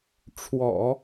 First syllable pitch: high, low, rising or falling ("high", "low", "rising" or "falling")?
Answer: low